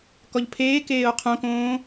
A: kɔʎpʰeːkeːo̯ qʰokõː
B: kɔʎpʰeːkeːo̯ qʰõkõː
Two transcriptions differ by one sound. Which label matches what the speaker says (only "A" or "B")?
B